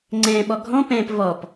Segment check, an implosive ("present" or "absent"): present